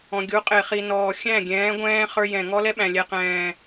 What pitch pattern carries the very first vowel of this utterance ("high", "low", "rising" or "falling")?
low